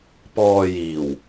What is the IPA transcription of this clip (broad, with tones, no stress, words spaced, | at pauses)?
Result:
pɔː˧jiː˨˩w